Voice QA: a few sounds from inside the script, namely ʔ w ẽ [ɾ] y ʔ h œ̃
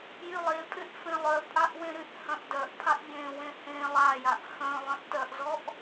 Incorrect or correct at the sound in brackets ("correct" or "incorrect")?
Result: correct